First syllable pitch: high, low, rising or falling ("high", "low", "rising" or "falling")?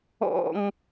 falling